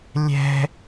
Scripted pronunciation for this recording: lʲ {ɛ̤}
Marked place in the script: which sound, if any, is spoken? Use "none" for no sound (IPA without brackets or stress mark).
ɛ̤